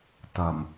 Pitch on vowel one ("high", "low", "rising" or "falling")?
low